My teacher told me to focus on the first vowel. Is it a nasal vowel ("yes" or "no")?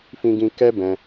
yes